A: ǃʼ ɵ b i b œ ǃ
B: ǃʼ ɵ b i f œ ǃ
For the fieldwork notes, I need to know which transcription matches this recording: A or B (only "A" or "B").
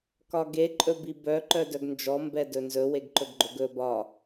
A